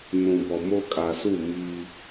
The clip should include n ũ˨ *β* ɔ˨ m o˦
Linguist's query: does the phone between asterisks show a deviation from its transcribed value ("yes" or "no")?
yes